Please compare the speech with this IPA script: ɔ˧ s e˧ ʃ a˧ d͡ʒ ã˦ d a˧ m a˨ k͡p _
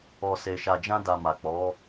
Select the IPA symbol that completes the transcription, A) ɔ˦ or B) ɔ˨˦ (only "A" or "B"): B